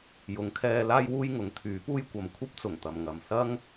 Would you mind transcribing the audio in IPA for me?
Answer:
j ʊ˨˥ ŋ kʰ ɛː˧ l aː˥ j w uː˥ j ŋ ʊ˨˥ ŋ t̪ʰ yː˨˥ p uː˥ j kʷ ɐ˨ m kʷʰ ɐ˥ p̚ t͡s ʊ˨˩ ŋ t̪ ɐ˨ m ŋ ɐ˨ m s ɐ˥ ŋ

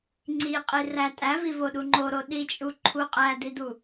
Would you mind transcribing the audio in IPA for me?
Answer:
ŋ͡ǀ i qʼ i r æ tʼ æ v i v o ɗ u ŋ͡ǃ o ɾ o ɗ i t͡ʃʼ u ǃʰ u qʼ æ d̪ i d̪ u

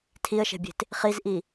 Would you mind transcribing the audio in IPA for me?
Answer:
tʰ i ə̯ ʃ e̤ bʲ e̤ t | χ i z ʔ i

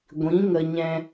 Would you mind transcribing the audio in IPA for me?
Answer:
ɡʷ ĩ˨˦ ŋ ə˧ ɲ ɛ̃˧

